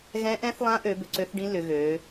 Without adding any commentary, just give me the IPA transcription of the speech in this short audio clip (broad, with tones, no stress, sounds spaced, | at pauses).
ɣ ɛ̃˧˥ ʔ ɛ̃˧˥ θ lˠ ã˧˥ ʔ ø˩˧ b ʏ˩˧ ǀ ø˧˥ θ ɖ ĩ˧˥ l ʏ˩˧ ɣ ø˩˧